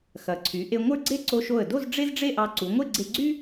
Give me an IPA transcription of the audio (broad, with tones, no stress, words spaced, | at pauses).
xɐ˩˧ǀʰy˩˧ ʔe˧ ŋʷə˞˥ɡ͡ǀe˥ ǀo˧ʃo˧˩ə̯do˥˧z ɖ͡ʐe˥zɖ͡ʐe˥˧ʔɑ˧ ǀu˩˧ŋʷe˥˧ɡ͡ǀe˧ɡ͡ǀy˥